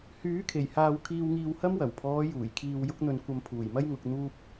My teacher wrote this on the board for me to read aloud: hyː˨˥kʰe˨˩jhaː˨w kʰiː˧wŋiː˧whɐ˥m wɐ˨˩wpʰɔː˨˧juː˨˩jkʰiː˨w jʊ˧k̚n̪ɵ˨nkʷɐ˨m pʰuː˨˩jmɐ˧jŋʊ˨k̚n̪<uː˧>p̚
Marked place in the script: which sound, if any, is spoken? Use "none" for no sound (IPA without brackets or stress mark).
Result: uː˧